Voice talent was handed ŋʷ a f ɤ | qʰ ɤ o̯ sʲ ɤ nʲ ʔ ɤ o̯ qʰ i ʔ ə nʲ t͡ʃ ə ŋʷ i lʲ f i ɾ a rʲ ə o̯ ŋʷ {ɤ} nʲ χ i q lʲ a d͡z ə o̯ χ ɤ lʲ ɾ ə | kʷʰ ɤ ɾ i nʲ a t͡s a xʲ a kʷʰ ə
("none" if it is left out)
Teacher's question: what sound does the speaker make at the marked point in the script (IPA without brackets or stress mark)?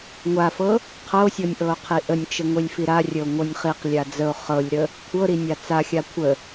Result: ɤ